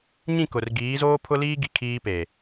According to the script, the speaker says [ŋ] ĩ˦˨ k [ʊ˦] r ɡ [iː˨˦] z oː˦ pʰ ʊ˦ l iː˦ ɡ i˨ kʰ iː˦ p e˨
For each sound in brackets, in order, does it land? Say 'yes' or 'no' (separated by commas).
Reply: no, no, yes